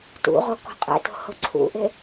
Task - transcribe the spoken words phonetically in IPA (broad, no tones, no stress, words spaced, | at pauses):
tṵʁo kɔ̤qʼɛ̰to̤ hʊǀʰṵʔe